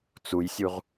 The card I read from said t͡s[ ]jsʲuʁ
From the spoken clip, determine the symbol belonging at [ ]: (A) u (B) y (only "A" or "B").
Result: A